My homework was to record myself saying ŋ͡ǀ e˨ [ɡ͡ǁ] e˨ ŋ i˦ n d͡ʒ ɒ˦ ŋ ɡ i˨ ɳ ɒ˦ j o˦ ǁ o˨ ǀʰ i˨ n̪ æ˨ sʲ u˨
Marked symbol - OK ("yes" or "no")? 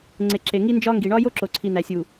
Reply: no